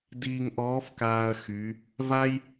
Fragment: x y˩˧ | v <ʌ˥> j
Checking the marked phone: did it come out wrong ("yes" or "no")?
yes